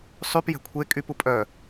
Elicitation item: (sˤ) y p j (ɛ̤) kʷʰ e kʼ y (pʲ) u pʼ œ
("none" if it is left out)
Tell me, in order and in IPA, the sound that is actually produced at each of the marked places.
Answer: sˤ, ɛ̤, p

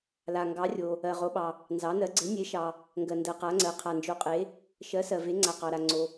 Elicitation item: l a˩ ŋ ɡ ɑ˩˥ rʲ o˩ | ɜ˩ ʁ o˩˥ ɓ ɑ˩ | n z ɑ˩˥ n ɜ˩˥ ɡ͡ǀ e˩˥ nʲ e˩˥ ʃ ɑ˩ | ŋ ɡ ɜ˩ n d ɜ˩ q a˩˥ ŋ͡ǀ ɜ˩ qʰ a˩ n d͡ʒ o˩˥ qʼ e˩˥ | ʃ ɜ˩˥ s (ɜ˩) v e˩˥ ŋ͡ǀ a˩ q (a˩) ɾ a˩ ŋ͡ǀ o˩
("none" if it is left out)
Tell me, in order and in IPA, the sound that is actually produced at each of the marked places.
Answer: ɜ˩, ɑ˩

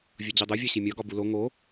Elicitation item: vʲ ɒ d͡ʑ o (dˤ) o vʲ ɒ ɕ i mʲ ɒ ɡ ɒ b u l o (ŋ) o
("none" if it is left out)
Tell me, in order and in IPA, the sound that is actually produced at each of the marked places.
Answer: dˤ, ŋ

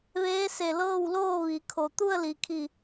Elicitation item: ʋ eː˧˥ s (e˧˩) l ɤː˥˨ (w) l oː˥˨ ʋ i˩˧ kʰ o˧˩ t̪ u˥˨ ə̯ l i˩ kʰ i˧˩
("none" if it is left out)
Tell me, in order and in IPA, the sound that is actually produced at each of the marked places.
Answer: e˧˩, w

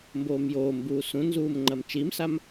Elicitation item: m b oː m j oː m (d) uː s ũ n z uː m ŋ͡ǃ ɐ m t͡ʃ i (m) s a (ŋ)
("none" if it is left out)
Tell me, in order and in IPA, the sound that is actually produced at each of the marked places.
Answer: b, m, m

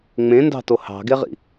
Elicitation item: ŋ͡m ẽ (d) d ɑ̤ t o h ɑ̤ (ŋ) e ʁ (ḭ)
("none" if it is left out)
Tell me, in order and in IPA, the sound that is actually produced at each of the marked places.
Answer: n, ɡ, ḭ

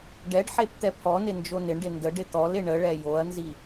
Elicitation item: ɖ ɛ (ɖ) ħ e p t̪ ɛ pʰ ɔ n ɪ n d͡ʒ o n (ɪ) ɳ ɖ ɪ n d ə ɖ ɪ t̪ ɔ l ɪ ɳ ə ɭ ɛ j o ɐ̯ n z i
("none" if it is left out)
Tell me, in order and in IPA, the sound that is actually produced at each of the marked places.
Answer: ɖ, ɪ

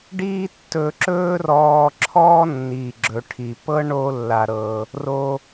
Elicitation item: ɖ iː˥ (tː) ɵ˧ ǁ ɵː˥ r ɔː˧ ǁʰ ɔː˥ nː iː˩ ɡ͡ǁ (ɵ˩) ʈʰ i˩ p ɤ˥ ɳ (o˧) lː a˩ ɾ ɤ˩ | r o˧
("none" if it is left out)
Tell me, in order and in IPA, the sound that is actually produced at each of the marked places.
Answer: tː, ɵ˩, o˧

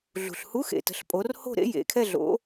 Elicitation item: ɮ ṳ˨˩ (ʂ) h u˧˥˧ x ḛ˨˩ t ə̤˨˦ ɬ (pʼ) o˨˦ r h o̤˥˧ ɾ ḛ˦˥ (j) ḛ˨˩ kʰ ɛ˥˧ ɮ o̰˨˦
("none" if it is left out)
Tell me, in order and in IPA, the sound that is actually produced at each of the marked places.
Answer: ɬ, pʼ, j

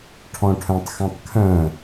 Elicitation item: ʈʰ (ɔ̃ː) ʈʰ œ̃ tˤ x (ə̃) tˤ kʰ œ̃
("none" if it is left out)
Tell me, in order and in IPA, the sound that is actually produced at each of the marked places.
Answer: ɔ̃, œ̃

